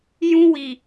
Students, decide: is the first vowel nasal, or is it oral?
nasal